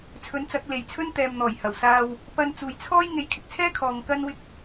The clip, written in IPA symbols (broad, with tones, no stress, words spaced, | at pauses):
t͡sʰɵ˨˥nt͡sɐ˨˥k̚le˨jt͡sʰɵ˥n t̪ɛː˨mn̪ɔː˨˩jhɐ˨˩wsaː˧w | pɐ˧n t͡suː˨jt͡sʰɔː˥j ŋe˨˥jkʰɪ˨k̚t͡sʰɛː˥kʰɔː˨ŋ kɐ˥n wɪ˥k̚